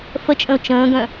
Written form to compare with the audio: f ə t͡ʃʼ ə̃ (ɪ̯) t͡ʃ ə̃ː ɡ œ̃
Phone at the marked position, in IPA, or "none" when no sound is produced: ʊ̯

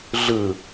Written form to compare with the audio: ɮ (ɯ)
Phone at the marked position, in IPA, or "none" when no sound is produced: ɯ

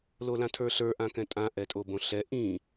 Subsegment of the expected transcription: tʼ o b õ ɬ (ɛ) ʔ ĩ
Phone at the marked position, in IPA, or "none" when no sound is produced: ɛ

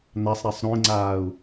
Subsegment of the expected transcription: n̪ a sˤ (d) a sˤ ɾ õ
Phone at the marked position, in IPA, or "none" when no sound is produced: ɾ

